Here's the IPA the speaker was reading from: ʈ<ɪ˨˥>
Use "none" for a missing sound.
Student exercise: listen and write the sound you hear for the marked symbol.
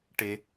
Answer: ɪ˩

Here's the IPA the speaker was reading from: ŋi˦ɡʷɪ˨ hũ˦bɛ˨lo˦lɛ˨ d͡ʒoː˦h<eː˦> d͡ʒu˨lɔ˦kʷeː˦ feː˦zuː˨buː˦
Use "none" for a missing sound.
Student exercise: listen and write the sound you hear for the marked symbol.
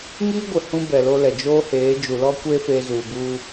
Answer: eː˨˦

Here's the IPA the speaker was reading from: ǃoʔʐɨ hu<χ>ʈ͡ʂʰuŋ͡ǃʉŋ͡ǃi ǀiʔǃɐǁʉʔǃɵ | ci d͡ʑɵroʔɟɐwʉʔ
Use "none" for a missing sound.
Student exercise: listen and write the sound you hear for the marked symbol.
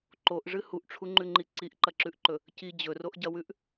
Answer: ʔ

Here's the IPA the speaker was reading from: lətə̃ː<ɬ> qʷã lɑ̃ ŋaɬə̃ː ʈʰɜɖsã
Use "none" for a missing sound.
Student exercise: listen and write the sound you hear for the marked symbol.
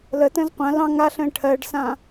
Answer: z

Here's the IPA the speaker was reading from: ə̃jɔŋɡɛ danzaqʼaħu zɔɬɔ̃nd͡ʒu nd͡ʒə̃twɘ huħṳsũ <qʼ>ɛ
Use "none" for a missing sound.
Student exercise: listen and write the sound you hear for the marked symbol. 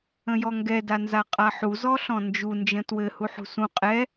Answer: qʼ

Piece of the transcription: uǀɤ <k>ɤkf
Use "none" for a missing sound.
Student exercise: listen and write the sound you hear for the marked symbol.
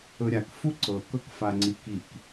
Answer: k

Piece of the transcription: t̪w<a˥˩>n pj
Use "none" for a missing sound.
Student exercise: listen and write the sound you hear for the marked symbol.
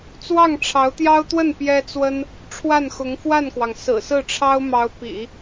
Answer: ə˥˩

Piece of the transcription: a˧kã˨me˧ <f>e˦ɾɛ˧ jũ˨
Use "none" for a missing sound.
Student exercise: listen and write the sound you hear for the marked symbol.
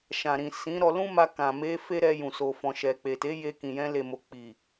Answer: f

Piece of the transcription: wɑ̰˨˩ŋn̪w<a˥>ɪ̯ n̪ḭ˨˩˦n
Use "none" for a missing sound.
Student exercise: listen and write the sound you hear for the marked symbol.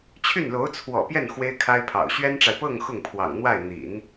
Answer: a˥˩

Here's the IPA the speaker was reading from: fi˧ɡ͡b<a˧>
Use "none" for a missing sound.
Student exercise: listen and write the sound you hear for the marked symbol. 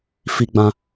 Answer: ã˧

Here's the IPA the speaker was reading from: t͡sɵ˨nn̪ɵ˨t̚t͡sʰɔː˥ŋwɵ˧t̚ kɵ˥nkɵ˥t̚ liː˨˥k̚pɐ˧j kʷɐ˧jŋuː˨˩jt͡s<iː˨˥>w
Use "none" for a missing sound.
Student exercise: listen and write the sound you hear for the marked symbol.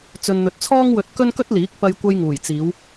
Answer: iː˨˧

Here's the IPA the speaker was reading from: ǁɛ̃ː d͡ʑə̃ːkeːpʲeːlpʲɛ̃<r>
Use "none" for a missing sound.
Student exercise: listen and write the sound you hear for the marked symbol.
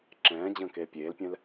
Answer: l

